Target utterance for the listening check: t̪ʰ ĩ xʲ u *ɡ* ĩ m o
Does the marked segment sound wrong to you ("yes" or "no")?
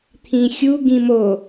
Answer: no